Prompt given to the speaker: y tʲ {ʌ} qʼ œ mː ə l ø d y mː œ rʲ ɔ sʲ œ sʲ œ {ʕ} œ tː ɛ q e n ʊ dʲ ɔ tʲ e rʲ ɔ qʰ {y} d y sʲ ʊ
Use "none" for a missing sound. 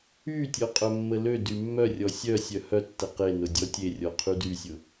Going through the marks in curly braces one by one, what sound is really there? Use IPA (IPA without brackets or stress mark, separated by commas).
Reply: ɔ, h, y